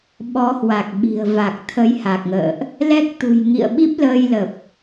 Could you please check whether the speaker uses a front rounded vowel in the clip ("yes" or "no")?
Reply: no